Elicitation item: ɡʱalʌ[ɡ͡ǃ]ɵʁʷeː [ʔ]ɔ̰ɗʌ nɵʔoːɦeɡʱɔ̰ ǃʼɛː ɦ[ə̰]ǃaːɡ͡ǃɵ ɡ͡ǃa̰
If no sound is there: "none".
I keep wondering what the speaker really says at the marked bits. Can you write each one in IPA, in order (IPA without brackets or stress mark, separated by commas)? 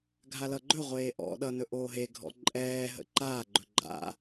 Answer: ɡ͡ǃ, ʔ, ə̰